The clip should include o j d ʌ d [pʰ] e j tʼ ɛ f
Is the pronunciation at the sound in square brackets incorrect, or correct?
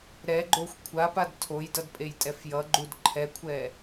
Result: incorrect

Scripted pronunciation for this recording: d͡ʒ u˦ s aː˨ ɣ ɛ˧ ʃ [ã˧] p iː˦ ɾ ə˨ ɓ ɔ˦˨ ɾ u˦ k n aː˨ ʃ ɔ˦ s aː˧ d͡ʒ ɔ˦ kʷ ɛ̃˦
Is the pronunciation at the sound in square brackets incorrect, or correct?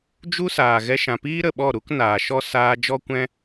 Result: incorrect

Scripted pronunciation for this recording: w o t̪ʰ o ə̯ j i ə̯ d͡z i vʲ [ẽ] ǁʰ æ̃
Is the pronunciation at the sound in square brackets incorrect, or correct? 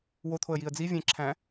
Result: correct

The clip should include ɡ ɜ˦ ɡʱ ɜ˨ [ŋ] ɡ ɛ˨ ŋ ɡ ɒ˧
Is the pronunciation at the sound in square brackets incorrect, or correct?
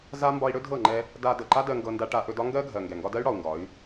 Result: correct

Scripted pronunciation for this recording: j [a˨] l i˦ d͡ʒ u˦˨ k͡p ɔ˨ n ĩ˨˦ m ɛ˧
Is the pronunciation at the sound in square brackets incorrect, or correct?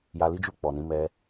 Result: incorrect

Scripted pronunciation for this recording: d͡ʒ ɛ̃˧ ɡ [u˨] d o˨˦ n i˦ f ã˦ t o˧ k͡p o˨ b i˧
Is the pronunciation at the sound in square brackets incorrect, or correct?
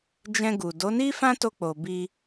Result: correct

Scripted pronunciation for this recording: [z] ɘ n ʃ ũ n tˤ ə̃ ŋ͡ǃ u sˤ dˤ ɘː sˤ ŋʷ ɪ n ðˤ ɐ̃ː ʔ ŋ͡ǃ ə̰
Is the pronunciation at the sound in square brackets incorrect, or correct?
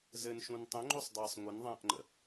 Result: correct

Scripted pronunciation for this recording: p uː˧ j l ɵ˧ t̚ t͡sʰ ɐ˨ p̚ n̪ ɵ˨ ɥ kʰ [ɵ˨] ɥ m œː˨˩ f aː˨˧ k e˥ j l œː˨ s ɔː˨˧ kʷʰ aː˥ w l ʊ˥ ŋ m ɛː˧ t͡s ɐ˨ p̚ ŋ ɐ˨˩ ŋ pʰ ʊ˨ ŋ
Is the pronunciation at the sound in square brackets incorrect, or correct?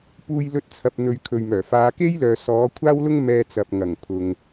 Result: correct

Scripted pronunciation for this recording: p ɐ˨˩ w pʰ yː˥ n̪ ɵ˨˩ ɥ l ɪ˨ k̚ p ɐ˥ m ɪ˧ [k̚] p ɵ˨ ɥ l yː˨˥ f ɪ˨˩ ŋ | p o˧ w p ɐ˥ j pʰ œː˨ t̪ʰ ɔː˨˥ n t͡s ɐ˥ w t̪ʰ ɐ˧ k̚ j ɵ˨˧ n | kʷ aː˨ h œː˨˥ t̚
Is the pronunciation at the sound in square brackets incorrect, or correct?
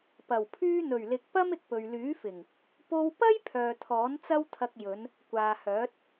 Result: correct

